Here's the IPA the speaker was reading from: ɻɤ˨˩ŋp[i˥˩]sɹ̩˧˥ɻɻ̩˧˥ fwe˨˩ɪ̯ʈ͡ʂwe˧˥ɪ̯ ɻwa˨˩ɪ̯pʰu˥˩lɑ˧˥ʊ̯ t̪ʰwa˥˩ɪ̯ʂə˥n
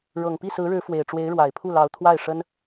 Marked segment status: correct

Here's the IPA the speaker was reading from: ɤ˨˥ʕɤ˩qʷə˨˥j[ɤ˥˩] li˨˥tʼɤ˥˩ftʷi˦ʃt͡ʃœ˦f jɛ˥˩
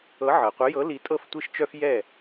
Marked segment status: incorrect: ɤ˨˥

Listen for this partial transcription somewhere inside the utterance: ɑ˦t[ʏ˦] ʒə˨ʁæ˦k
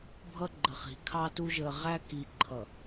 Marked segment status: incorrect: u˦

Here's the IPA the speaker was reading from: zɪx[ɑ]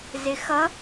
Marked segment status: incorrect: ʌ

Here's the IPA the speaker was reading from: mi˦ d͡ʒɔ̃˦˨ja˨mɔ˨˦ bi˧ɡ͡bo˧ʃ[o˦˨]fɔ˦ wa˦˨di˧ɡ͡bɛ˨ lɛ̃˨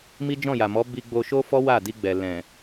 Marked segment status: incorrect: o˦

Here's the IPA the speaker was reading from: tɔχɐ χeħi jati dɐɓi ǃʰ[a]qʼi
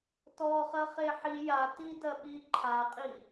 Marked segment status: correct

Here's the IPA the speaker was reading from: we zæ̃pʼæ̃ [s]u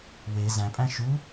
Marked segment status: incorrect: ʃ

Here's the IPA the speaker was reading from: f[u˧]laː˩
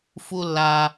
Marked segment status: correct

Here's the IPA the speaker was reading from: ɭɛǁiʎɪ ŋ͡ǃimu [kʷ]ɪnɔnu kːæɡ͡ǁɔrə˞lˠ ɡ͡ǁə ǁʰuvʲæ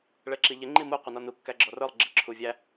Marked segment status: incorrect: qʷ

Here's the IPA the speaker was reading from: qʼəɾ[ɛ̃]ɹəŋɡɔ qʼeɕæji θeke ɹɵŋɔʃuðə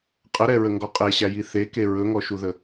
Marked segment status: incorrect: ɛ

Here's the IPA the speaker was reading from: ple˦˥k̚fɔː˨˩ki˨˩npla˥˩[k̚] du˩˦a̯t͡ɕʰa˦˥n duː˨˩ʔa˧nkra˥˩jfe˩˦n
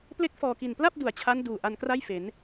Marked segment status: incorrect: p̚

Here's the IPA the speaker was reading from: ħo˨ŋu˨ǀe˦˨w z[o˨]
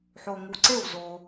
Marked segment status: correct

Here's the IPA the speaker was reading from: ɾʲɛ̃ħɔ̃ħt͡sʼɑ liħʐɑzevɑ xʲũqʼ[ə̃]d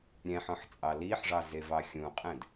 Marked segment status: incorrect: ɛ̃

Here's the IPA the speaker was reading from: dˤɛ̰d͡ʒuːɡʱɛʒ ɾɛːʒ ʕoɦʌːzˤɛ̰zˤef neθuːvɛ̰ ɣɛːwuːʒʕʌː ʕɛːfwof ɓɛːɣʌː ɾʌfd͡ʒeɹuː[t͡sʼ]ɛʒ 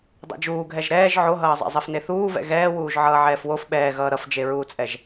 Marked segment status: correct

